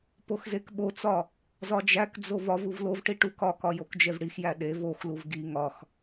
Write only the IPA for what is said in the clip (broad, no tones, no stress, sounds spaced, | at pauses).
p o x z e k ɓ o t͡s ɒ | z ɒ d͡ʒ æ k d͡z o v ɒ v u v l o v ʈ i ʈ u k ɒ k ɒ j o k d͡ʒ e v ɽ i x j æ ɗ e v o x l u v ɡ i ŋ ɒ x